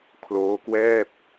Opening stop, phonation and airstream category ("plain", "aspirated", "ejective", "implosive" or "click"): aspirated